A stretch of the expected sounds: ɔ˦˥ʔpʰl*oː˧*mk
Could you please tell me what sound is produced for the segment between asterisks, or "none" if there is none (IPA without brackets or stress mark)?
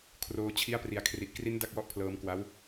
ɤː˧